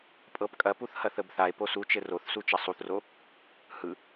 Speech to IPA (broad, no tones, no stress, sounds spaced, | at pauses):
pʼ ɤ p kʼ ɐ p u θ h ɐ θ ə b θ a e̯ p o s u t͡ʃ ɘ r o θ s u t͡ʃ ɐ sˤ u θ r o | h ɯ